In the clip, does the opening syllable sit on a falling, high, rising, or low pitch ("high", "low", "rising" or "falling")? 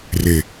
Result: low